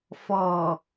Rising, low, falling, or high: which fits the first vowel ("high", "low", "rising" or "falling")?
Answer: low